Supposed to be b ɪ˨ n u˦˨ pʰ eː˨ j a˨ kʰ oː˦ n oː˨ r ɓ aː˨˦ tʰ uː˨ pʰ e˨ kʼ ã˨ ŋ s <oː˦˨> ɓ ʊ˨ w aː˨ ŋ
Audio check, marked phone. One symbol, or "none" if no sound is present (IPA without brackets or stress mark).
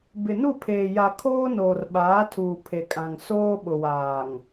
oː˦